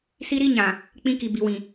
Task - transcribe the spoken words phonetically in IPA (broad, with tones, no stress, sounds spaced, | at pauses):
s i˦ ɾ i˦ ɲ ã˨ | k͡p ĩ˦ k i˨ b i˨ w ĩ˨